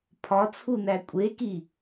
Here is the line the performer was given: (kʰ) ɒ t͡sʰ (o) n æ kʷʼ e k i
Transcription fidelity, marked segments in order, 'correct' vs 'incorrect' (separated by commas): incorrect, incorrect